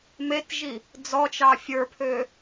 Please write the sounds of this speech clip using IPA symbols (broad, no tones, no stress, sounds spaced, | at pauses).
m e t ʒ i | d͡z ɔ t͡ʃ ɑ fʲ ə˞ pʰ ø